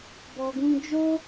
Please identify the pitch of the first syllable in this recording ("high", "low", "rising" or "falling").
low